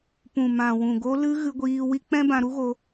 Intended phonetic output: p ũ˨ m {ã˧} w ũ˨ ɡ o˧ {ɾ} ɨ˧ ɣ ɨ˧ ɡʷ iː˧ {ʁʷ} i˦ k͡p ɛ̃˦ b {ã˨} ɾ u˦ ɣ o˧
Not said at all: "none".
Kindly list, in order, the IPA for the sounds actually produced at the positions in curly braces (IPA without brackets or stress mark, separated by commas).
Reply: ã˨, l, w, ã˧